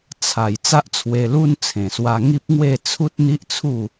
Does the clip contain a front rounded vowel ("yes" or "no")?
no